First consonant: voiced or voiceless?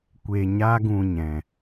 voiceless